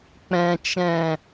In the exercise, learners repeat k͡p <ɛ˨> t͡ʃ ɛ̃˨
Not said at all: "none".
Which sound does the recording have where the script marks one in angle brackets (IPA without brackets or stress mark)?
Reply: ɛ̃˨